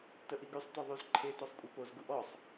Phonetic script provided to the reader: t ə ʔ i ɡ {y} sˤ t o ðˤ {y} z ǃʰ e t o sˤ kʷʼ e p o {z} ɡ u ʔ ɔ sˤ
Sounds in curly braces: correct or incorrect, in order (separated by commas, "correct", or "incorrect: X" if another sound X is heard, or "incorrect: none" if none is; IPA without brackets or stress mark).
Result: correct, correct, correct